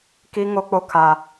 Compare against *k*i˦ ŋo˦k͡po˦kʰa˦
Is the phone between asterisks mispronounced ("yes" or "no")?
no